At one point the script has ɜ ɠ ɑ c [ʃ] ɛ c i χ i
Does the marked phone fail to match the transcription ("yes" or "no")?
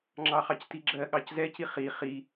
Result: yes